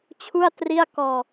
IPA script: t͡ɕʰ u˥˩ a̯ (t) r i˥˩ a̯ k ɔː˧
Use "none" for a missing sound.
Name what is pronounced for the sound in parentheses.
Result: t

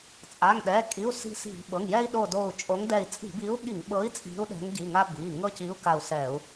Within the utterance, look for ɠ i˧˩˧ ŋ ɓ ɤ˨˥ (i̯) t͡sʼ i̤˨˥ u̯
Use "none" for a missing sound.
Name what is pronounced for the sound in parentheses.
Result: i̯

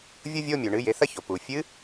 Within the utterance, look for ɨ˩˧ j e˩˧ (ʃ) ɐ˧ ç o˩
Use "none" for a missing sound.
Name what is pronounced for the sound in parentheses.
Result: θ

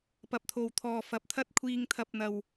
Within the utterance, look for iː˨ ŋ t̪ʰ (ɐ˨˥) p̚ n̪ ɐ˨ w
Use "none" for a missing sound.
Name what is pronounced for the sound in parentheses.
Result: ɐ˨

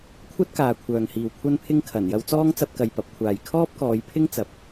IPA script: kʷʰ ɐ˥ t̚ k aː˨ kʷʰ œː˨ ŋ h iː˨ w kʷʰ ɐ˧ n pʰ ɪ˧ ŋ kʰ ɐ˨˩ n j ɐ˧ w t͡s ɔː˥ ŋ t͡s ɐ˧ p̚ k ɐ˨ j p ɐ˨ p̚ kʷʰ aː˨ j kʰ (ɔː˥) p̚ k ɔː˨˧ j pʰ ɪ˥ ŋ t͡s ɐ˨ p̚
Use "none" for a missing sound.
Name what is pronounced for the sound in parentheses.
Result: ɔː˥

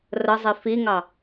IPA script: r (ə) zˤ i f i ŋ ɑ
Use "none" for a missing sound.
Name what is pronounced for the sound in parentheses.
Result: ə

